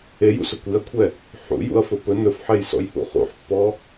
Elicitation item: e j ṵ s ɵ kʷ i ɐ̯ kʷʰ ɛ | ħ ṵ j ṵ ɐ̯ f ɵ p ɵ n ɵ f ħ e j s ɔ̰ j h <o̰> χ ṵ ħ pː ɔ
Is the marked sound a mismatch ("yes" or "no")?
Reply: yes